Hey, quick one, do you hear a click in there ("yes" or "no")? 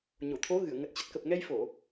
no